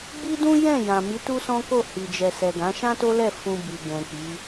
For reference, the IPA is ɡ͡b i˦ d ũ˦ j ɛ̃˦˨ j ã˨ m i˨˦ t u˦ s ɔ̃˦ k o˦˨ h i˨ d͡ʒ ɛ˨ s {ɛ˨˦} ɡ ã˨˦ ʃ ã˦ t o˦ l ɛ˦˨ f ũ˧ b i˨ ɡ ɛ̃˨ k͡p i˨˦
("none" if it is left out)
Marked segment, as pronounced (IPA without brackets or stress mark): ɛ˨